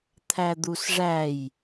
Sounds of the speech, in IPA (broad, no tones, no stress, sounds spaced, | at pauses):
t̪ʰ æ d̪ u s ʐ æ j